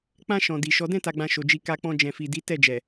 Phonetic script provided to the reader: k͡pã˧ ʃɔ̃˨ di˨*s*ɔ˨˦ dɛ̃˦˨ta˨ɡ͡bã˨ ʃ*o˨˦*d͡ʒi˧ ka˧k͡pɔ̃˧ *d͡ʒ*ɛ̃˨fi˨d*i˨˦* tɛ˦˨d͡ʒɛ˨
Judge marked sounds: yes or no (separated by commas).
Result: no, no, yes, yes